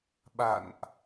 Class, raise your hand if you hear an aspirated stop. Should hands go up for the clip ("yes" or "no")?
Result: no